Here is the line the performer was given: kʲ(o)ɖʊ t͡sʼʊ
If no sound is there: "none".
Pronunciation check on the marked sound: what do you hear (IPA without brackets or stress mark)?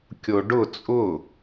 o